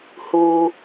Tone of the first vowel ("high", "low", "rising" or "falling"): low